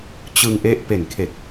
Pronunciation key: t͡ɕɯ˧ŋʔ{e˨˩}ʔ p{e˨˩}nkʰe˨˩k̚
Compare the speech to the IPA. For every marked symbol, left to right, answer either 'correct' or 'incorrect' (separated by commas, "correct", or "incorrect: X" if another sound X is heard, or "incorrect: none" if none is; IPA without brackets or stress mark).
incorrect: e˦˥, correct